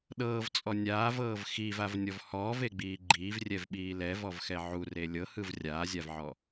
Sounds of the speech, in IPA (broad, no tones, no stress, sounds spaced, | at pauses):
ɗ ɤː v t͡sʼ ɔ nʲ aː v ɤː v x i v a v nʲ ɔ v h ɔː v e ɡ͡b iː ɡ͡ǃ iː v rʲ ɛ v ɓ iː l ɛ v ɔ v x ɛ ʕ u r e lʲ ɤ h ɯ v rʲ aː zʲ a v ʕ ɔ